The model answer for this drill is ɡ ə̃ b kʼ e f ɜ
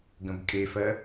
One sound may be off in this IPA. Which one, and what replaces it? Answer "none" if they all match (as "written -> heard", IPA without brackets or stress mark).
none